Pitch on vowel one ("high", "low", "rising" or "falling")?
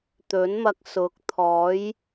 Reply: rising